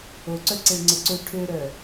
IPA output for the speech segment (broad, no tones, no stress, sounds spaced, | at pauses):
o ǀ œ ǀ e ɭ ŋ͡ǀ ə ǀ ø ʈʰ ø ɾ œ